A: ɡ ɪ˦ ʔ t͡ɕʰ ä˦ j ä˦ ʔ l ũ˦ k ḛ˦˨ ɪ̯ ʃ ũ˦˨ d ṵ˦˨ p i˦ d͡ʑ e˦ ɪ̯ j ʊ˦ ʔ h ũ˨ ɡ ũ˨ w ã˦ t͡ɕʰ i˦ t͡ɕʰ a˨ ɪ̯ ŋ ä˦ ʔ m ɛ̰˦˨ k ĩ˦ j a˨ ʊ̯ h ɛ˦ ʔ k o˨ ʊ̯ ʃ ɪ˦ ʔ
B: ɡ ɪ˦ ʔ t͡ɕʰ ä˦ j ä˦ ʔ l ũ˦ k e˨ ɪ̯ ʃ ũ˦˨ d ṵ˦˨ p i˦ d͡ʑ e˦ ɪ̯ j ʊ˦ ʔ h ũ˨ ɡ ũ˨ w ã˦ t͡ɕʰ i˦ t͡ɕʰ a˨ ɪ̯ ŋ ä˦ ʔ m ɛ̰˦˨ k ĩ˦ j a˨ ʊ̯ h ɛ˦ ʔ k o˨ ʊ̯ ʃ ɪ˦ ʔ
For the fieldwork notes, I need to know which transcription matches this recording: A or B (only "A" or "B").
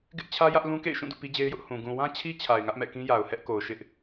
A